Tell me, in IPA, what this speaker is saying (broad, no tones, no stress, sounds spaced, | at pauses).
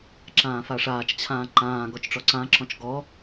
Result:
ǁ ãː f a ʂ aː t͡ʃ t͡ɕʰ ãː ǃ ãː ɡ ɔ t͡ʃ ʈ͡ʂ ɔ ǀ ã ǁ ɔ̃ t͡ʃ ɡ ɔ